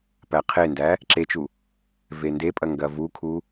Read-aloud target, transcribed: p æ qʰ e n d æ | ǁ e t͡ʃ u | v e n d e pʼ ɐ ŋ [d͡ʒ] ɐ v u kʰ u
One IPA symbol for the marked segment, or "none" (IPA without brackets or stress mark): ɡ